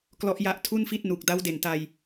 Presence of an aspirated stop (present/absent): present